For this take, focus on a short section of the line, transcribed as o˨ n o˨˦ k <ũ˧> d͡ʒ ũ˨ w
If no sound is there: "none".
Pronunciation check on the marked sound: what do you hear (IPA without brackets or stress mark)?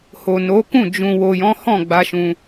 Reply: ũ˦˨